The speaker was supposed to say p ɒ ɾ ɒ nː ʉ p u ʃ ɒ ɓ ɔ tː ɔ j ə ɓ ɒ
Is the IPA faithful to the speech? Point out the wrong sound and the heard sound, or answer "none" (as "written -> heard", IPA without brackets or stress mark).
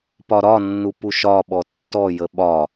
ʉ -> u